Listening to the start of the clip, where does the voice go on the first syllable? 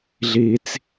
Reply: low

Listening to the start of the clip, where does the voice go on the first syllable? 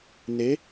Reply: rising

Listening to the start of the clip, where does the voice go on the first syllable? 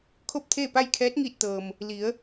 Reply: falling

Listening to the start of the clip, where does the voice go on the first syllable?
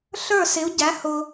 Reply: falling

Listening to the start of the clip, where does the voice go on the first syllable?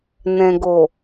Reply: low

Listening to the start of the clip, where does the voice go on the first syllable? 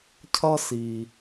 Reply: high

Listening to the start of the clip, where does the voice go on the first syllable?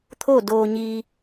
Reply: falling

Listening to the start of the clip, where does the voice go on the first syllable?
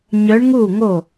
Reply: rising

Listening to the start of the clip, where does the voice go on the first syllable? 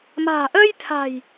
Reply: low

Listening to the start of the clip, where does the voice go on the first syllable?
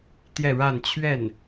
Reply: falling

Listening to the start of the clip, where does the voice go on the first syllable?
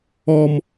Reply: high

